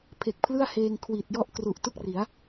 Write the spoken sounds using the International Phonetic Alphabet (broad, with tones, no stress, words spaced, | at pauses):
pʰe˨˩k̚pʰlɯ˥˩a̯heː˧ŋ kʰwi˨˩t̚jɔ˥˩ʔ kru˨˩ʔtu˥˩k̚ri˩˦a̯